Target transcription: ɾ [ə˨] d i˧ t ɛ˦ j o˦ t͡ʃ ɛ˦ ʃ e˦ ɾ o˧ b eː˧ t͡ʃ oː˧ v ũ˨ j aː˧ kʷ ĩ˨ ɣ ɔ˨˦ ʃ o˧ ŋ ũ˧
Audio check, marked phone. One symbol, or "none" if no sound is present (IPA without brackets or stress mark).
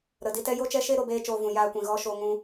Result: ə˨